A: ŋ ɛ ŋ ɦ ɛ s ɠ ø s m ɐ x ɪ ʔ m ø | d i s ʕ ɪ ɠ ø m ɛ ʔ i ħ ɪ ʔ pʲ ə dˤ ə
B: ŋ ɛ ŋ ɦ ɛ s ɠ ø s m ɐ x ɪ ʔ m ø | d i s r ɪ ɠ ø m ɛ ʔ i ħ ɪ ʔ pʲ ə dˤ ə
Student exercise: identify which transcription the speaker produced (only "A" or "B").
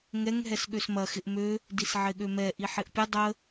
A